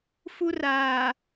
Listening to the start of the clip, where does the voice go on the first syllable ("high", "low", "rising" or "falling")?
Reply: high